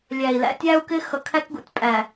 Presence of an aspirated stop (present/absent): present